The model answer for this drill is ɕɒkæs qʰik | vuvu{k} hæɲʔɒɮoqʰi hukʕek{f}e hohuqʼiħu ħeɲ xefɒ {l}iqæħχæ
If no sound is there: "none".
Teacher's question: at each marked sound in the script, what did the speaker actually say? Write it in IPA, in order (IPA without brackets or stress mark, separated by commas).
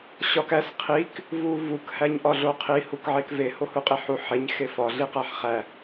k, v, ɮ